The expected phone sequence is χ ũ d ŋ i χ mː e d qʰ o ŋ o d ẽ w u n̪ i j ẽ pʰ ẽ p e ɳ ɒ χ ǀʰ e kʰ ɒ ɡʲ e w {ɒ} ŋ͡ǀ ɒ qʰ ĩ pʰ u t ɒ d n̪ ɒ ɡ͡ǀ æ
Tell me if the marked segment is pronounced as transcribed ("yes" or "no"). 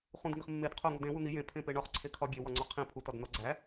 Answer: yes